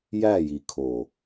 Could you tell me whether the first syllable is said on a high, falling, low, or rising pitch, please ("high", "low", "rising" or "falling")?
falling